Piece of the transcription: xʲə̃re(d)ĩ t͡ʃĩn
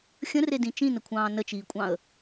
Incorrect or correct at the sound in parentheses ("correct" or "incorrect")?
correct